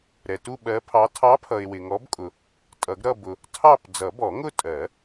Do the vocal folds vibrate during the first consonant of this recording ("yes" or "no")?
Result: yes